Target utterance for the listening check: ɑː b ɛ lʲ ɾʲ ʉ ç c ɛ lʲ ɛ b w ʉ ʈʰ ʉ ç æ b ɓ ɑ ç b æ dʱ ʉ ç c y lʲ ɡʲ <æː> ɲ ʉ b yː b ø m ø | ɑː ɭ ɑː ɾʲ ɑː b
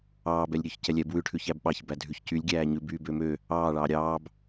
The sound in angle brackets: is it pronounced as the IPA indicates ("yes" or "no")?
yes